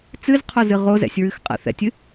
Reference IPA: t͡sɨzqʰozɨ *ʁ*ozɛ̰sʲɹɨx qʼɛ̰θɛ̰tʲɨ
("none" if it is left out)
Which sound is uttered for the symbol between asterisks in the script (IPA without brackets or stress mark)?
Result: ʁ